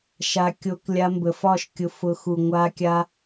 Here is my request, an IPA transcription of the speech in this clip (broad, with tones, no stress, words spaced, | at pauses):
ʃa˧ kʲo˧klʲa˧mbə˨fɒ˦˨ʃ kʲʊ˧fʊ˧xu˨ ŋʷa˧kʲa˧